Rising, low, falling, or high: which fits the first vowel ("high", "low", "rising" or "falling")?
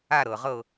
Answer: falling